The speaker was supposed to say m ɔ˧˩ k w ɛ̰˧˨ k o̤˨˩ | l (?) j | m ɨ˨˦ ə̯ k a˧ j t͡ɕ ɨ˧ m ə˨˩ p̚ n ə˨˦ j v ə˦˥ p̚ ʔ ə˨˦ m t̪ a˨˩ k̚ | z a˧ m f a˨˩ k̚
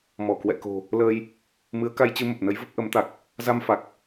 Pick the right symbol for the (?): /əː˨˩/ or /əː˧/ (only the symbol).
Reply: əː˧